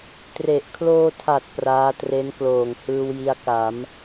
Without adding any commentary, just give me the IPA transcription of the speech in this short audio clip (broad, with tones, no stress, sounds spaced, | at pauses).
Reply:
t r e˨˩ ʔ kʰ l oː˧ tʰ a˨˩ t̚ p r aː˦˥ t r e˦˥ n k l oː˨˩ ŋ h ɯː˧ w j i˦˥ a̯ k a˩˦ m